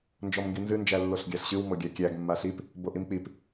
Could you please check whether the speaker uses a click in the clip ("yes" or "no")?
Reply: no